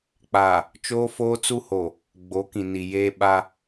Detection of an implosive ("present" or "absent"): present